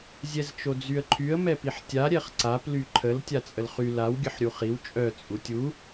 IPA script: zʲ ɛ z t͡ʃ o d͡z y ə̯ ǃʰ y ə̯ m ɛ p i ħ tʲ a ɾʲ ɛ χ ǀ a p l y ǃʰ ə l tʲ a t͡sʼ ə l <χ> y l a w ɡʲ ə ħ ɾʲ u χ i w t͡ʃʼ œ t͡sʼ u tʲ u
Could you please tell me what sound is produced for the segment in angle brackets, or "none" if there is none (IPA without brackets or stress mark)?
χ